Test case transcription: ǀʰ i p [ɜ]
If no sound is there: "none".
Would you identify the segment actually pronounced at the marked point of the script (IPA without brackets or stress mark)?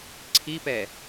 ɛ